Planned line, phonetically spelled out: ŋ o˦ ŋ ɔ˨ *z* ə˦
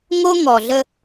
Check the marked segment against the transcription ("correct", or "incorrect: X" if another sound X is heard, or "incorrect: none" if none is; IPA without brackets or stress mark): incorrect: ɮ